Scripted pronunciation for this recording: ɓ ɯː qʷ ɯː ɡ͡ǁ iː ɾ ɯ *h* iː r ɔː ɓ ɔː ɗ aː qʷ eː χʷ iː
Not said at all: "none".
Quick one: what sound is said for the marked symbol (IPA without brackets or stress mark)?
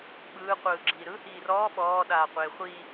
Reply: h